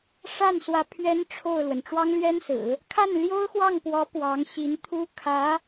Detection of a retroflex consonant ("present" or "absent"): present